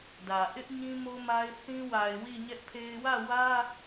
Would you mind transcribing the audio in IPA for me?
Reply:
d ä˨ ʔ ɪ˦ ʔ ɲ ĩ˦ m o˦ m a˦ ɪ̯ θ ĩ˦ w a˨ ɪ̯ w i˦˨ ɲ ɛ˦ ʔ pʰ e˦ ɪ̯ w ä˦˨ w ä˦

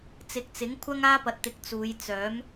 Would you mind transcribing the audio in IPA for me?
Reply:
t͡s ɪ˨ k̚ t͡s ɪ˨˥ ŋ kʷʰ ɐ˥ ŋ aː˥ p ɐ˨˥ t̚ t̪ ɪ˨˥ k̚ t͡s uː˨˧ j t͡s œː˨˥ m

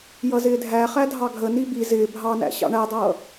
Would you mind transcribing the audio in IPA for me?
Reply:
j ʌ z ɪː dʱ æ χ æ dʱ ɑ ɡʱ ə n i b i z ɪː bʱ ɑ n æ̰ ɕ ɑ̰ ɳ æ dˤ ʌː

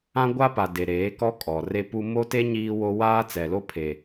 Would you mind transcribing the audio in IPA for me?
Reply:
ã˦ ɡʷ a˦ p a˨ d e˨ ɾ eː˨˦ k ɔ˦ kʼ ɔ˨ r e˦ p u˦ m o˦ t e˦ ɲ iː˦ w o˦ w aː˦ t͡s ɛ˨ l o˦ pʰ e˨

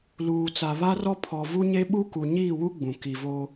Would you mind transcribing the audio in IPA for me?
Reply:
l uː˨ t͡s a˨ β a˦ r ɔ˦ pʰ ɔ˨ v u˦ ɲ e˦ ɓ u˦ k u˨ ɲ iː˦˨ w u˦ ɡ͡b ũ˨ k i˨ v o˦

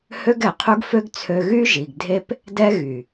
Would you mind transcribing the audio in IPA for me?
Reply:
h ø˦ ɡ ɛ˨ qʰ u˦ ɡ f ø˦ ɡ t͡sʰ ø˧ ɣ y˦ ʒ i˨ ɡ dʱ e˦ p | d ɛ˦ ɣ y˨

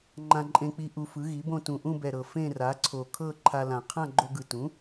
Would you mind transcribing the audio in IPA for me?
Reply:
ŋ͡ǃ ã˧ ǃʼ ẽ˧ k͡p i˧ ʔ u˧ f ɯ˩˥ ɣ i˩˥ b õ˥˧ t ũ˨˩ ʔ ũ˥˧ b ɛ˨˩ ɾ ɤ˨˩ f ẽ˥˧ r a˩˥ ǀʰ o˨˩ kʰ ɤ˥˧ ǃʰ a˧ l ã˨˩ qʰ ã˥˧ ɡ͡ǃ o˧ ɡ ɯ˨˩ t ũ˩˥

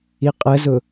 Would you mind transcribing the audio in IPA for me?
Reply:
i qʼ ə z ʊ

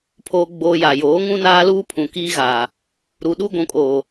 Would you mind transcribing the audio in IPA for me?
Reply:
pʰ oː˨ ɡ͡b oː˨ j a˨ j oː˨˦ ŋ ũ˦ n aː˦ l uː˦ pʰ ũ˨ k iː˦ ɣ aː˨ | ɾ u˨ ɗ u˦ ɡʷ ũ˨ kʼ oː˨

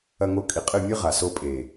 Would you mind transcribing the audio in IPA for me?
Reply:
ɐ˧ ŋ o˧ kʼ i˨ qʼ ɨ˦˨ mʲ ɨ˦ ʁ a˨ s o˧ pʼ e˨

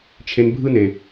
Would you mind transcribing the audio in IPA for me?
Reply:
t͡ʃʰ e˧ n bʱ ɯ˦ n e˨

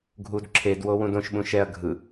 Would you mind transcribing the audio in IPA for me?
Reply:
ɡʱ u d ǁʰ e d w o w ũ d õ ʃ ɓ ũ ʃ ɛ ɐ̯ ɡʱ ɯ

